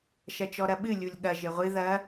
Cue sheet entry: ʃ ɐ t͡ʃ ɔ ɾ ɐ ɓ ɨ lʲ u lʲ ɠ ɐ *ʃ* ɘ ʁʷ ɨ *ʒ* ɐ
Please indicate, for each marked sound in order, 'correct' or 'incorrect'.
incorrect: ʒ, incorrect: ð

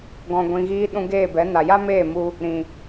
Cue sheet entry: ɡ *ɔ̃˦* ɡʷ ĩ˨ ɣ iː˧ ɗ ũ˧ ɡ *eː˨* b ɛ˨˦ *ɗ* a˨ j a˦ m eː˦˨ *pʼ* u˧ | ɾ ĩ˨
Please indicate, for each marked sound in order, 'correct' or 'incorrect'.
incorrect: ɔ̃˨, incorrect: eː˦˨, incorrect: n, incorrect: m

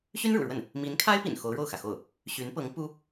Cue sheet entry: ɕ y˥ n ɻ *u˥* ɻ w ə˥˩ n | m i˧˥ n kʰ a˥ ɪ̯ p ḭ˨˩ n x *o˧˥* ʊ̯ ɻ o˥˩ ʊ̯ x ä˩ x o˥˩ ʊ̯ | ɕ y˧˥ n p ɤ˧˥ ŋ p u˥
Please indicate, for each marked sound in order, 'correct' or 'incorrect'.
incorrect: ṵ˨˩, correct

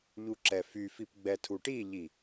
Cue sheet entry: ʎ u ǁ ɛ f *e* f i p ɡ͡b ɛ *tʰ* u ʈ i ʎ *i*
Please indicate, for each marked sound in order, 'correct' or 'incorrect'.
incorrect: y, correct, correct

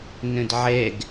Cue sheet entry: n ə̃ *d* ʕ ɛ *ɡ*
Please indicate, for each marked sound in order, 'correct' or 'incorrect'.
correct, correct

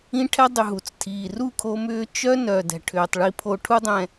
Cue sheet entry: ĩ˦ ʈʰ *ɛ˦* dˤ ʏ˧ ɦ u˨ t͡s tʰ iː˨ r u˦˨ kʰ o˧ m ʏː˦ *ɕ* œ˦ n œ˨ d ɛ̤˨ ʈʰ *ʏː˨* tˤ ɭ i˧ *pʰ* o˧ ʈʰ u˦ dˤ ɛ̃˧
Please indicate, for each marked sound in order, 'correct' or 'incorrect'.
correct, incorrect: t͡ʃ, correct, correct

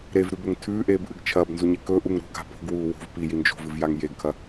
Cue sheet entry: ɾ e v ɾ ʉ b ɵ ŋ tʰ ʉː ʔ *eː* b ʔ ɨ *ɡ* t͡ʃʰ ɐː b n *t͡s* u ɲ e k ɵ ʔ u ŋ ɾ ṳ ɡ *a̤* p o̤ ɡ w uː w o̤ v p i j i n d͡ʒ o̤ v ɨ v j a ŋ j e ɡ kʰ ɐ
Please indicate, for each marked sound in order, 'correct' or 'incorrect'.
correct, correct, incorrect: z, correct

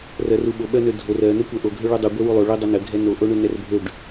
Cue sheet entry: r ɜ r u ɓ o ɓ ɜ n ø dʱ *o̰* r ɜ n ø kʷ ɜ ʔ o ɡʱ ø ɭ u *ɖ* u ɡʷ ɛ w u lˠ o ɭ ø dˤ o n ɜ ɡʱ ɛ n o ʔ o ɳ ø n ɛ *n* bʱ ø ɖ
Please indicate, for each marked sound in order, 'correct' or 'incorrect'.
incorrect: o, incorrect: dˤ, incorrect: r

